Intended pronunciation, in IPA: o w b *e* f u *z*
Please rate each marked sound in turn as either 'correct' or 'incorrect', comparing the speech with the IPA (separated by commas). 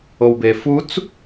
correct, incorrect